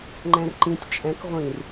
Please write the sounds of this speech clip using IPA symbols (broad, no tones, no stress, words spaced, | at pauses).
ŋ͡ǃɛ̃rǃĩtʲ t͡ʃʼɛ̃k ʁʷĩr